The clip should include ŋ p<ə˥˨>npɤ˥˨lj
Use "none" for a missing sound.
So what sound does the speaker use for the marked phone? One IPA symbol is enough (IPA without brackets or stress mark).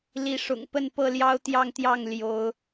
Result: ə˥˨